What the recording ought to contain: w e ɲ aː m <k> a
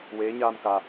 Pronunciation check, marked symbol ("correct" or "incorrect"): correct